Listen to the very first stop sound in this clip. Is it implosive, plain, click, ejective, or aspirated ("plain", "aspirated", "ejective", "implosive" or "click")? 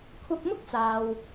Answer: aspirated